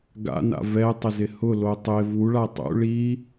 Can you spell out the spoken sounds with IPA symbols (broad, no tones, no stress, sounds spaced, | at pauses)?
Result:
ɡ a̰ n a̰ v ɛ tˤ ɪ z ɪ h ʊ l o tˤ e v u ɭ a tˤ ṵ ɭ i